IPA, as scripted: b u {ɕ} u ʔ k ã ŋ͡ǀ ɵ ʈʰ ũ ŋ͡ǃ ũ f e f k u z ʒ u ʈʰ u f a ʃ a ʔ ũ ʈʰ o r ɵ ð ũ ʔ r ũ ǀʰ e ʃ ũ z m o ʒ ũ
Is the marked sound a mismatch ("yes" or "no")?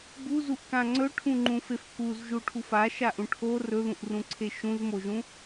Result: yes